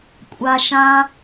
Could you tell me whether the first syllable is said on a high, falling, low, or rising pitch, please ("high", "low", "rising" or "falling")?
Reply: low